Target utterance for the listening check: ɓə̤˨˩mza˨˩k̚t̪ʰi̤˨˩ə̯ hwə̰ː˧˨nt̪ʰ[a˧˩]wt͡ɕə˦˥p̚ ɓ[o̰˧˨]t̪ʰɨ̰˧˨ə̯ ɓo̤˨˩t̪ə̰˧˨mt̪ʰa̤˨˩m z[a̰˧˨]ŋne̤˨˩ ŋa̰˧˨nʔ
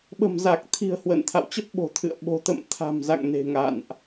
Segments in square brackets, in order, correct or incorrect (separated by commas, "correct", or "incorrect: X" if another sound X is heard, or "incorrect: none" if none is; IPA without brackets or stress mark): incorrect: a̰˧˨, incorrect: o̤˨˩, correct